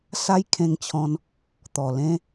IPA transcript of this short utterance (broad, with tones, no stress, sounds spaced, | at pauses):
s a˦ j kʰ ẽ˧ ŋ t͡ɕʰ ɔ̃˧ n | t̪ ɔ˨˩ l ẽ˦